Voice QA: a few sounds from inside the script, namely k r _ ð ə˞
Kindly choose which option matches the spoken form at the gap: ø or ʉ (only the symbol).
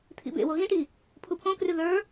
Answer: ʉ